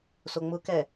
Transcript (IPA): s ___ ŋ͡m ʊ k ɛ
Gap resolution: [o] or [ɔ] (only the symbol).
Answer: o